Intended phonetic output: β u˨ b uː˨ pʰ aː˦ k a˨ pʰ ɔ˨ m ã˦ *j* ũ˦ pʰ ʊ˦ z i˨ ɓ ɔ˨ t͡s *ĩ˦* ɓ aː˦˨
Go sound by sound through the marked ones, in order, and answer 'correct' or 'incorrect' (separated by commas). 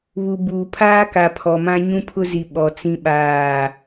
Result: incorrect, correct